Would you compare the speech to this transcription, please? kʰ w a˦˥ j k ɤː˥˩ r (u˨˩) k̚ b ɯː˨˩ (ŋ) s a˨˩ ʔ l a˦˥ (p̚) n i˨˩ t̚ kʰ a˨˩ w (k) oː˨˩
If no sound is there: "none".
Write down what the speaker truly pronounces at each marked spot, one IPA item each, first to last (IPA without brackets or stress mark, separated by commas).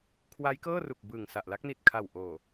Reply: u˨˩, ŋ, k̚, ʔ